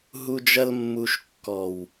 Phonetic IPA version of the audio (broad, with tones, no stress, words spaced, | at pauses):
ɦu˧d͡ʒɐ˧l mːu˧ʃkːɔ˨w